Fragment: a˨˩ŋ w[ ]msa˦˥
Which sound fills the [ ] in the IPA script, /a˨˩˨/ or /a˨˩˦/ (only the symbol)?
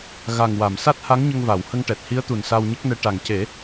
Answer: a˨˩˨